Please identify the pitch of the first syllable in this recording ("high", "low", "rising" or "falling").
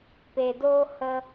low